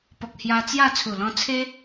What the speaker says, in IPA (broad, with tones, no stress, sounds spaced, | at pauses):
p ɔ˨ k̚ h j a˧ t͡s j a˥˧ t͡sʰ u˨˩ l ɔ̃˧ t͡sʰ e˦